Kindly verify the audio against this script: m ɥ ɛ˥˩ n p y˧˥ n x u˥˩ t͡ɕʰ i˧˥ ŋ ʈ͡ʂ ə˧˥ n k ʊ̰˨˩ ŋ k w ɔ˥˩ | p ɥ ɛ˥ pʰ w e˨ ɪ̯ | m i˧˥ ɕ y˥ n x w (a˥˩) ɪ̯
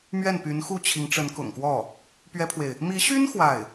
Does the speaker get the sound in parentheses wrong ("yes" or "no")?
no